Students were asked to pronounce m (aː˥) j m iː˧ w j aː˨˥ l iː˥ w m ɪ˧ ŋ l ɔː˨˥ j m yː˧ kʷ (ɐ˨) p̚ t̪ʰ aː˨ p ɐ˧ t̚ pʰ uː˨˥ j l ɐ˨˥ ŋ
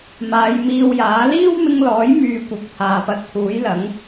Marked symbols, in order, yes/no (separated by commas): no, yes